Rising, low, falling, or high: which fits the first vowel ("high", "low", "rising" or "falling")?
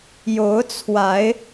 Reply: rising